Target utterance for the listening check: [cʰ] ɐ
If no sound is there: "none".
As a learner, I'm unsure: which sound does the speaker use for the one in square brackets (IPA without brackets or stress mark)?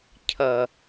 cʰ